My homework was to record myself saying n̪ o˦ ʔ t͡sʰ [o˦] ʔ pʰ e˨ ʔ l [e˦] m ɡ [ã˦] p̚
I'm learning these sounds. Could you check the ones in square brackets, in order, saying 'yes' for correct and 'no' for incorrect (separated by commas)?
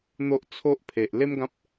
yes, yes, yes